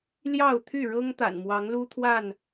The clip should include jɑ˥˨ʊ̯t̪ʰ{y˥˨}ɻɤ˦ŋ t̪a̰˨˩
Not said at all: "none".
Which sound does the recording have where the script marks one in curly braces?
y˥˨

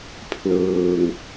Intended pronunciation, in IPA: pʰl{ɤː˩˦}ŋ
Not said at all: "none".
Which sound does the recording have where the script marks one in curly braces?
ɤː˧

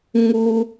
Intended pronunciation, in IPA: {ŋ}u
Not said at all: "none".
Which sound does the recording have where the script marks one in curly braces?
ŋ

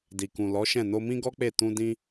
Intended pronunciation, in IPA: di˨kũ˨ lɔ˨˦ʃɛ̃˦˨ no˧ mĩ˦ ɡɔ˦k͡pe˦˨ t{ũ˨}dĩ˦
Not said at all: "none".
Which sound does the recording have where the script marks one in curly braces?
ũ˧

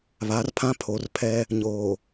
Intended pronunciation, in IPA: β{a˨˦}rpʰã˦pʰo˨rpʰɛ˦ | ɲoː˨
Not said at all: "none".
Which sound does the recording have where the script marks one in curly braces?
a˨˦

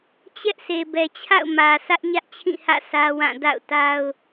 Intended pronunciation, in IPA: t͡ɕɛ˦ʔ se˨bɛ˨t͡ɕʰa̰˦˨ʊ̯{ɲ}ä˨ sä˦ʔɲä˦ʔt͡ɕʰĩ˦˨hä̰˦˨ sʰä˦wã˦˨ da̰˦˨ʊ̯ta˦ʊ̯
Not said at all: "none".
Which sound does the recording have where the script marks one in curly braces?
m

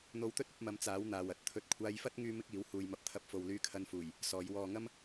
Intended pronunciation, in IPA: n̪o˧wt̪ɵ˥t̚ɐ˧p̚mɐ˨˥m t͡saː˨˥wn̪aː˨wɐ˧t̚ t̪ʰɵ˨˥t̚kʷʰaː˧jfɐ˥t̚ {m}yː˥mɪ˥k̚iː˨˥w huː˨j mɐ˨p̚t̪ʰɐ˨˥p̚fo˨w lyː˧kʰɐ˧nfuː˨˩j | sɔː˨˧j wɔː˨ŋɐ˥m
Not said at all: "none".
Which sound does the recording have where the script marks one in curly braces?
ŋ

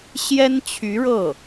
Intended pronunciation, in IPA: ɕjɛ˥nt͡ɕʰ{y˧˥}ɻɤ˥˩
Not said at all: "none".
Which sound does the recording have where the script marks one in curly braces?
y˧˥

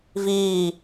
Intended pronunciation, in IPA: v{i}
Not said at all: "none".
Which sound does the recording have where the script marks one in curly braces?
iː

